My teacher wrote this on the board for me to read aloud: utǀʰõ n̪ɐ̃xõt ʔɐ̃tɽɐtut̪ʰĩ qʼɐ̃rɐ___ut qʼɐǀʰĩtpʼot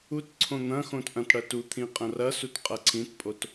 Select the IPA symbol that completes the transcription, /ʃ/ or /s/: s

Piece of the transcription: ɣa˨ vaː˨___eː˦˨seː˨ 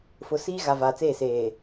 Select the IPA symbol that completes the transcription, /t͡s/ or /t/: t͡s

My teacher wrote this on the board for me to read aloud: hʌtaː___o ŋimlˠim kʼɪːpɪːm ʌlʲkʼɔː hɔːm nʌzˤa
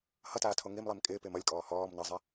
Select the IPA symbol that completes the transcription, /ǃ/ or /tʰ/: tʰ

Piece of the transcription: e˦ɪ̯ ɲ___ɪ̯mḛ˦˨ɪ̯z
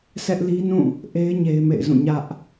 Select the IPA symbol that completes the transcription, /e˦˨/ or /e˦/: e˦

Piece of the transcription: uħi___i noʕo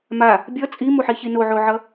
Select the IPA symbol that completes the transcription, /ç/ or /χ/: ç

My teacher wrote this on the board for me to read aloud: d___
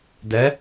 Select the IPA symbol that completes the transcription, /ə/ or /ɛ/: ɛ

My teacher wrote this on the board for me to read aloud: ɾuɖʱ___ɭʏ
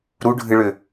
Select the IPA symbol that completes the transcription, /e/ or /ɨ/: ɨ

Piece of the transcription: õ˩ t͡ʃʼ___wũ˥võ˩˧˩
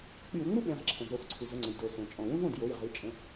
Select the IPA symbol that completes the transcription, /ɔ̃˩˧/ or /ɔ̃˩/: ɔ̃˩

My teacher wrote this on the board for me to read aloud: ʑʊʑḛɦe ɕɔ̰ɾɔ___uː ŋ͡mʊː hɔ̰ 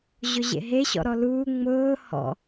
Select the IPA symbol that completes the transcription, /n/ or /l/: l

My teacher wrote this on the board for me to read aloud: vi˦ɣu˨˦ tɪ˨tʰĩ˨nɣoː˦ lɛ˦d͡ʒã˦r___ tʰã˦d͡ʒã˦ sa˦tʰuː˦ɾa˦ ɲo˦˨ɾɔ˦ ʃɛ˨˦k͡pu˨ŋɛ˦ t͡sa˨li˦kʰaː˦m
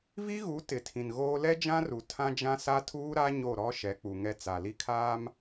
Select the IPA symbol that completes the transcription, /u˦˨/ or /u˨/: u˨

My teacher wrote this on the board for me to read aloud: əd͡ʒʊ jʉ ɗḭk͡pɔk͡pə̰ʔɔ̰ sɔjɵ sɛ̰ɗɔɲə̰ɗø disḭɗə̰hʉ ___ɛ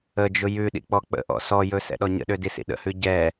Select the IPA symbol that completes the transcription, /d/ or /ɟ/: ɟ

